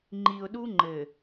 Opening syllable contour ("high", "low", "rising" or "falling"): low